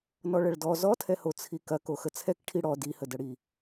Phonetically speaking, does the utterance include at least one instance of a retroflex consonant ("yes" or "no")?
yes